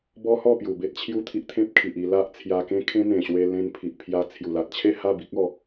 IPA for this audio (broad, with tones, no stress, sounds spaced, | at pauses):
b ɔ˦ h ɔ˥˧ p j u˨˩ b e˦ t̚ t͡ɕʰ j u˥˧ t̪ʰ i˦ ʔ t̪ʰ ẽ˦ p̚ kʰ i˨ ʔ i˧ l a˦ ʔ t͡sʰ j a˧ k ẽ˦ kʰ ẽ˦ n̪ ẽ˨˩ ɕ w e˧ l ẽ˧ n pʰ i˨ ʔ pʰ j a˧ t͡sʰ j u˨˩ l a˨ t̚ t͡ɕʰ e˥˧ h a˥˧ b i˦ k̚ ɔ˥˧